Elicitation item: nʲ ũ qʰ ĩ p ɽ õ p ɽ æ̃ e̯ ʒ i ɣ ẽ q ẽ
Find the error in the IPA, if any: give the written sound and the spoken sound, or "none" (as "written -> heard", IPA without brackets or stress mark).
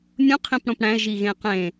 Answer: none